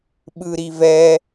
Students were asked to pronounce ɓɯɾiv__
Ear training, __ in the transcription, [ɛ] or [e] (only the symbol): ɛ